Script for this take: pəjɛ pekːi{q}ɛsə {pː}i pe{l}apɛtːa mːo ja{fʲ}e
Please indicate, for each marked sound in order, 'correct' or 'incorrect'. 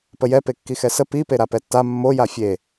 incorrect: x, incorrect: p, incorrect: ɾ, correct

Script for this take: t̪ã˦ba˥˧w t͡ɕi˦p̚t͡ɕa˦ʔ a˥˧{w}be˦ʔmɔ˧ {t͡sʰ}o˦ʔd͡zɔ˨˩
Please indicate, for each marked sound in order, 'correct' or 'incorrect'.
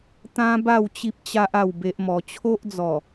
correct, incorrect: t͡ɕʰ

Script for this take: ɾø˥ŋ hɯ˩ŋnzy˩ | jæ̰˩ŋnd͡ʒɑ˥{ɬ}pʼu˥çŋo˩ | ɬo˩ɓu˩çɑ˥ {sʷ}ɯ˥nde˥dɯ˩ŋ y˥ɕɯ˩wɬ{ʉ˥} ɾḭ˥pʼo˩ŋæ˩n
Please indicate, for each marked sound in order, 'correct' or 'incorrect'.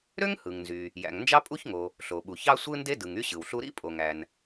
incorrect: none, correct, incorrect: u˥

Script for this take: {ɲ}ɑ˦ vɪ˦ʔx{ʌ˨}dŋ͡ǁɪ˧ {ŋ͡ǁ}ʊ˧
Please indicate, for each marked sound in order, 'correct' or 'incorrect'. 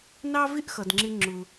incorrect: n, correct, correct

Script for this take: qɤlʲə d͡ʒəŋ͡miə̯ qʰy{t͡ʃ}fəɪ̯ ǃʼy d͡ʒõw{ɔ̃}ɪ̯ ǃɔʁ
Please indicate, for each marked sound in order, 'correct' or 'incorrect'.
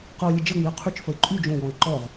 correct, correct

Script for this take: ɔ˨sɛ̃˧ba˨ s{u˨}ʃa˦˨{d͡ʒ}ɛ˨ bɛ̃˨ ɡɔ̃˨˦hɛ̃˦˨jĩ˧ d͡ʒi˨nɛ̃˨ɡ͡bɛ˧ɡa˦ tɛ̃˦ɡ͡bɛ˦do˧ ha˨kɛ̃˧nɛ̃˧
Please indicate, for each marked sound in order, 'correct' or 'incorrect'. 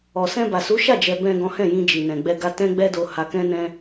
incorrect: u˨˦, correct

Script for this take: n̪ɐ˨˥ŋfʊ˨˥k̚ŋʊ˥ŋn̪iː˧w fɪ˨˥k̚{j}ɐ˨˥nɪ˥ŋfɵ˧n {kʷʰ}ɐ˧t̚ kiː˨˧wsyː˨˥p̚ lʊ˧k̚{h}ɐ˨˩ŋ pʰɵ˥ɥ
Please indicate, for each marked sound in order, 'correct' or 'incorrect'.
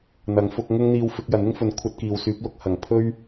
correct, correct, correct

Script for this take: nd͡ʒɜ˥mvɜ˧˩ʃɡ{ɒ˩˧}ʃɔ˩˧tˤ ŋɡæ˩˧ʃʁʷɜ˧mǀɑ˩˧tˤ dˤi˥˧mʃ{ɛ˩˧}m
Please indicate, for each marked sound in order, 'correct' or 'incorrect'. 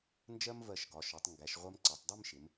correct, incorrect: ɪ˩˧

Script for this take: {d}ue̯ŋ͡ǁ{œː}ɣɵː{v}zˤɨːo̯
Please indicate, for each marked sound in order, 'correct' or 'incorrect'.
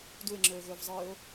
correct, incorrect: ɵː, correct

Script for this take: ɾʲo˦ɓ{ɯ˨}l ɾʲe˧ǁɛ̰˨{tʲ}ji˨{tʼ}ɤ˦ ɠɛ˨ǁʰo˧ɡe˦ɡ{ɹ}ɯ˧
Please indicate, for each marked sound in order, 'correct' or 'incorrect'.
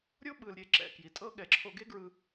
correct, incorrect: k, correct, correct

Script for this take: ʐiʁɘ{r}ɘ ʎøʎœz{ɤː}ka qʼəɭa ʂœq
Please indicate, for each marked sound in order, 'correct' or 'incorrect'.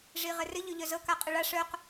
correct, incorrect: ɤ

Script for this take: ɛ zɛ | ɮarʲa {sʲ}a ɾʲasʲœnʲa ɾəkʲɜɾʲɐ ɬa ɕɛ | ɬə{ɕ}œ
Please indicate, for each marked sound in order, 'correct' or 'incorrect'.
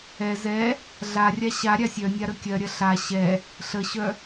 incorrect: ɕ, correct

